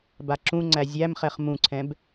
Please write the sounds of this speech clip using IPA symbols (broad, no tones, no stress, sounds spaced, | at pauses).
b a ǁ ũ ŋ͡ǀ æ zʲ æ m χ ɛ χ m ũ ǀʰ ɛ̃ b